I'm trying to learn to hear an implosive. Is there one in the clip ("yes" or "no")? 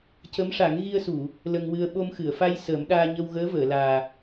yes